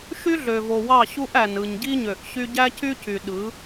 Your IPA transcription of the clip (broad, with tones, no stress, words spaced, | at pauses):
ʃy˦ɮø˨vo˨ wɑ˦˨ɕu˦ʔæ˨nɯ˨ɲ ɟi˦ɲø˨ʔɕy˦ ɟæ˦ cy˦cy˨ɗɯ˨˦